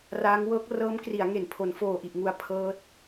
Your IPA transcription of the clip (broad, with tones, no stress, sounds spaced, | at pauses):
r aː˦˥ ŋ w ɤː˦˥ k̚ r ɤː˦˥ m k r i˩˦ a̯ ŋ e˩˦ n pʰ o˩˦ n f oː˨˩ ʔ i˨˩ ʔ ŋ u˧ a̯ pʰ ɤː˦˥ t̚